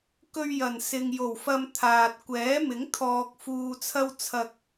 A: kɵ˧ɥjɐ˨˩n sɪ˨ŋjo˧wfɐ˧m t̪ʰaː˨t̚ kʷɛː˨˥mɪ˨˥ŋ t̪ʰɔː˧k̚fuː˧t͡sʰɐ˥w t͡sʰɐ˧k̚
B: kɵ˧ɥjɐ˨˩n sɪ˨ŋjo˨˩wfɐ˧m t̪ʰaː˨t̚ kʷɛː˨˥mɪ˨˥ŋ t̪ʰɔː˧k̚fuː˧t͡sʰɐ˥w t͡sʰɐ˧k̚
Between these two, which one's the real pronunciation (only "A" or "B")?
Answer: B